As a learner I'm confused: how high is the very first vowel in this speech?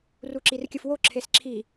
high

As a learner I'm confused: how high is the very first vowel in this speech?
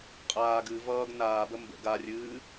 low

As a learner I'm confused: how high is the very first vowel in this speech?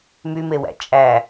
high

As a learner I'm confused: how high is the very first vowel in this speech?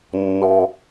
mid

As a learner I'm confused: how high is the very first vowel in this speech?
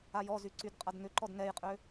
low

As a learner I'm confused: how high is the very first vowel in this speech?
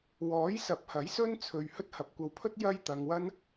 mid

